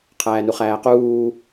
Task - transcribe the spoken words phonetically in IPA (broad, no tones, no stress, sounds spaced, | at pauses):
qʰ æː n u χ æː q uː